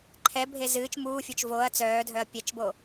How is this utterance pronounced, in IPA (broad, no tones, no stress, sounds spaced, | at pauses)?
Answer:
ǃʰ ɛ bʱ e z ɨː t͡ʃ m uː fʲ o t͡ʃ v o ɐ̯ t͡s œː dʱ œ ɐ̯ pʲ ɛ t͡ʃ b o